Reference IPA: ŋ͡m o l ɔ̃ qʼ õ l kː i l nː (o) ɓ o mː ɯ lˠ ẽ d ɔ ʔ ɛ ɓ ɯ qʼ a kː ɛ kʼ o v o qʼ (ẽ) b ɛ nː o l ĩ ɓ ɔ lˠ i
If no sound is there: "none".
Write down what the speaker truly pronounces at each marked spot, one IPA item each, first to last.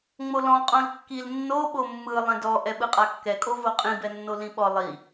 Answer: o, ĩ

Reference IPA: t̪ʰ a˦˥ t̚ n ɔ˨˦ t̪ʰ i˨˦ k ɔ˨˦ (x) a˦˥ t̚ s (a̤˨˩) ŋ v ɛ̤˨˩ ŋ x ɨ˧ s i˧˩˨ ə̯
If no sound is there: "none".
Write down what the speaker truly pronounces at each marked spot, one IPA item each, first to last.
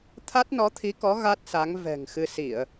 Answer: ɣ, a˨˦

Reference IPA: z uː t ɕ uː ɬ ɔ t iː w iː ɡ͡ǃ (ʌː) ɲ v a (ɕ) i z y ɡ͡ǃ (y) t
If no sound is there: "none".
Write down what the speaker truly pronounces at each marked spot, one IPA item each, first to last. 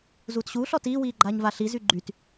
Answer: aː, ɬ, y

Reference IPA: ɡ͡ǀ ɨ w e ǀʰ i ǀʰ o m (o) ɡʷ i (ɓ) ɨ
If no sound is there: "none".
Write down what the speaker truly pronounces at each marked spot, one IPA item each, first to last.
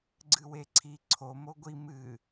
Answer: o, m

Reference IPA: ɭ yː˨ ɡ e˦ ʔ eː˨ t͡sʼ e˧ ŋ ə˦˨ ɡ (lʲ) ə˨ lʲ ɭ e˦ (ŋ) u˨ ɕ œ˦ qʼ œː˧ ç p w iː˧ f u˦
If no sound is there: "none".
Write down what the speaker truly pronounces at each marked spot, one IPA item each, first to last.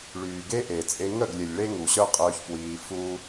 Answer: lʲ, ŋ

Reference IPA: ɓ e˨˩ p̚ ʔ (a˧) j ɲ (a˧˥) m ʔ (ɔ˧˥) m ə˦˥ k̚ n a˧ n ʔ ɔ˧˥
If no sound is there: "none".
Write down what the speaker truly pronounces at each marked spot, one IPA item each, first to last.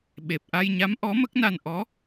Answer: a˧, a˧˥, ɔ˧˥

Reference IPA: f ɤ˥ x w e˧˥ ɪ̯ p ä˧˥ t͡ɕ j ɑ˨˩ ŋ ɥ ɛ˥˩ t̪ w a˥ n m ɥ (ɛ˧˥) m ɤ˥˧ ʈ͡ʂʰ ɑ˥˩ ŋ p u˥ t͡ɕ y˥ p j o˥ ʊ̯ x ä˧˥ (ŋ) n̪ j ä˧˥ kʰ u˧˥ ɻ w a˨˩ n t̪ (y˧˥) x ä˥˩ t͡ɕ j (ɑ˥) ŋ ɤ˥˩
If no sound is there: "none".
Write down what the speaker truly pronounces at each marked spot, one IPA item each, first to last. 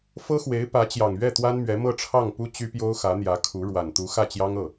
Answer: ɛ˧˥, none, u˧˥, ɑ˥

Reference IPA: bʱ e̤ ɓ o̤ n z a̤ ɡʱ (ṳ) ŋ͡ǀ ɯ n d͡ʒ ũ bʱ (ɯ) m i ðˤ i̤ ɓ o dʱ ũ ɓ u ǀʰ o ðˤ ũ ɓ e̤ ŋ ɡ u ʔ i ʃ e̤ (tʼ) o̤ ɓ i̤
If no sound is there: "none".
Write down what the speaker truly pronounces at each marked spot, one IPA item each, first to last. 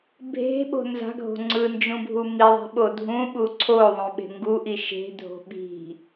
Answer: o̤, u, dʱ

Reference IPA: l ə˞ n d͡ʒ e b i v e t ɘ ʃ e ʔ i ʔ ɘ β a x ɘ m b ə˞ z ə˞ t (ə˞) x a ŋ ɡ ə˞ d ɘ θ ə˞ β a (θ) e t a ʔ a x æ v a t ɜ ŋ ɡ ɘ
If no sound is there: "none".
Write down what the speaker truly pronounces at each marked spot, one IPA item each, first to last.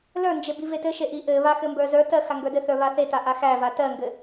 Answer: ɜ, θ

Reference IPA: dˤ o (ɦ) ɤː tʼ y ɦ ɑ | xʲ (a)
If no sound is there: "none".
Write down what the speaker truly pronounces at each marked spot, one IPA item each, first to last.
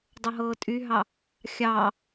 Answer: ɦ, ɑ

